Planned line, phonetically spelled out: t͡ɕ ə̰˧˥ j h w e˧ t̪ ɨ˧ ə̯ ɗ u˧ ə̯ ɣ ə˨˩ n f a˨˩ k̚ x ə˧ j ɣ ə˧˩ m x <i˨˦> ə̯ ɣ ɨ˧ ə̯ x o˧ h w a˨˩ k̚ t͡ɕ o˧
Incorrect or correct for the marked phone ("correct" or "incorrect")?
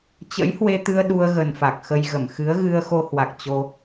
incorrect